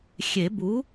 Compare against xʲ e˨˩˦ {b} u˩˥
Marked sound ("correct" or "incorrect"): correct